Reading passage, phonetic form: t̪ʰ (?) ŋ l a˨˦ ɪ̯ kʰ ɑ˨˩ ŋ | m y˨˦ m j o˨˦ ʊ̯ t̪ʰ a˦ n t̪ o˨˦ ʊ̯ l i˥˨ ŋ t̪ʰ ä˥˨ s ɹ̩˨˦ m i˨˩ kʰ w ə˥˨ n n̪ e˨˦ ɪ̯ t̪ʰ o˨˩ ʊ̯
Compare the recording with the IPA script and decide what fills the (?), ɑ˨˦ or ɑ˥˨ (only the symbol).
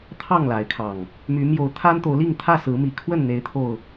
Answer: ɑ˥˨